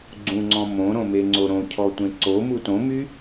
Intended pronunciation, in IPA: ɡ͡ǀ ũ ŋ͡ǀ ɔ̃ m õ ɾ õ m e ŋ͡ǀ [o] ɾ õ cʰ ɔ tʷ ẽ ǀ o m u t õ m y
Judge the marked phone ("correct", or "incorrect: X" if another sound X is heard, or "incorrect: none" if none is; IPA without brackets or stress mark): correct